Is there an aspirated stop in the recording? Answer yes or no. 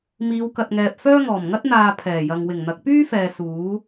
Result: yes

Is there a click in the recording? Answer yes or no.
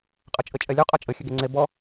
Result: yes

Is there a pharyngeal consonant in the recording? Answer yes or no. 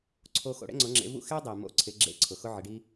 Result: yes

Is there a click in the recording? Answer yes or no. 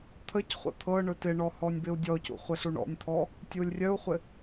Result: no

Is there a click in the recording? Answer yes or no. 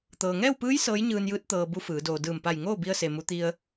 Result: no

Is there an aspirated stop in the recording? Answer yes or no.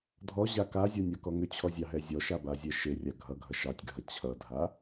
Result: yes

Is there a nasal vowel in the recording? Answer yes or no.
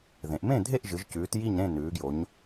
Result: yes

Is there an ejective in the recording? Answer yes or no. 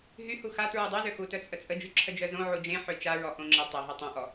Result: yes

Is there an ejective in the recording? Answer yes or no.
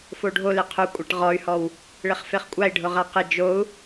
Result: yes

